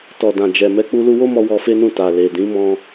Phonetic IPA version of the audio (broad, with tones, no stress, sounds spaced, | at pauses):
t ɔ˨ d ã˨ d͡ʒ ɛ˨ m ɛ˧ k͡p u˧ l u˧ w o˦ m ɔ˧ w ɔ˧ f e˦ n ũ˦˨ t a˨ l e˨ d ĩ˨˦ m ɔ̃˧